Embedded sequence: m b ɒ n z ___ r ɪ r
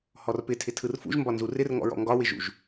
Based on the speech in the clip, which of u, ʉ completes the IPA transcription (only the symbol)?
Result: u